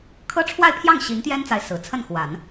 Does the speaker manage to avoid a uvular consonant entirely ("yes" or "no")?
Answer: yes